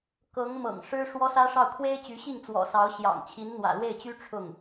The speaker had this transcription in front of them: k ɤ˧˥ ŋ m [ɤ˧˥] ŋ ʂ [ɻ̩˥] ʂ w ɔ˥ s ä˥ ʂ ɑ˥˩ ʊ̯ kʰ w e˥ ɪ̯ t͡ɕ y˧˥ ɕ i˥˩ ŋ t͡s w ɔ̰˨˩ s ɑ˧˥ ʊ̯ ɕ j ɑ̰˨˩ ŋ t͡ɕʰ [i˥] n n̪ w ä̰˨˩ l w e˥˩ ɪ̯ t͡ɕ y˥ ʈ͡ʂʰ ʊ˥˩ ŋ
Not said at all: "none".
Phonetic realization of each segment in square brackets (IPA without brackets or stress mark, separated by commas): ɤ̰˨˩, ɻ̩˥, i˧˥